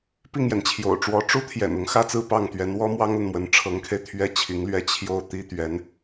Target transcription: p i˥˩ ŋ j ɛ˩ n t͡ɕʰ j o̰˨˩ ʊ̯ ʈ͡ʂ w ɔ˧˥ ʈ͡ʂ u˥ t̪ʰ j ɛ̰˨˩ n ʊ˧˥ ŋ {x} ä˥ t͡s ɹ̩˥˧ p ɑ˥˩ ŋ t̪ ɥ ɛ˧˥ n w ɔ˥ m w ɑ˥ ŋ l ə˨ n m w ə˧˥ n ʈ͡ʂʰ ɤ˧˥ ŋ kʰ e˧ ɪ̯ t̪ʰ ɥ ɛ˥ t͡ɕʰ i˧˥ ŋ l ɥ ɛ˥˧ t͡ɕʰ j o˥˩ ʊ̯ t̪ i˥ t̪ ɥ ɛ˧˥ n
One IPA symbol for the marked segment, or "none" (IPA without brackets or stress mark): x